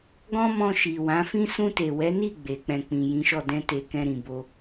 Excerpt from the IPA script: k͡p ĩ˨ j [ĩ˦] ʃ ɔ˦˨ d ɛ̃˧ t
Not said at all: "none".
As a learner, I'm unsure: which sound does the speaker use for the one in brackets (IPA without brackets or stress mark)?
ĩ˨˦